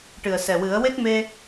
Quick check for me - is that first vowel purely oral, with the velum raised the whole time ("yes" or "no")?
yes